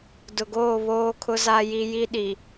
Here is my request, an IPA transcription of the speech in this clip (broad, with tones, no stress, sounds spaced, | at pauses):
d ʊ˨ ɡ oː˦˨ β oː˦ kʰ ʊ˦ z a˦ j i˦ j i˦ ɗ i˨